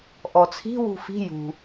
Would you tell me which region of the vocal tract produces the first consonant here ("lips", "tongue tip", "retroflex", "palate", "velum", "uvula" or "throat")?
throat